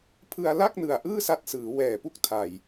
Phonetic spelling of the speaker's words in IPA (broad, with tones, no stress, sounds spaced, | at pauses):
pʰ ɯ˧ a̯ l a˥˩ k̚ n ɯ˨˩ a̯ ʔ ɯː˥˩ s a˦˥ t̚ s ɯː˩˦ w ɛː˨˩ p u˥˩ k̚ tʰ a˨˩ j